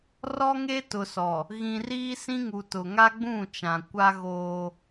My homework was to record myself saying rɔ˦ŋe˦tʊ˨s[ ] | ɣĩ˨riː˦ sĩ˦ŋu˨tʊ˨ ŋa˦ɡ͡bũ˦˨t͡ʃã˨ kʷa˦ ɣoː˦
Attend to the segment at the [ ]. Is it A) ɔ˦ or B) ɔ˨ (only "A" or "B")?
B